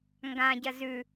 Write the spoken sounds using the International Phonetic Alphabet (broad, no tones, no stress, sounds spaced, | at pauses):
ŋ ɡ ã ɟ ɐ z ʉ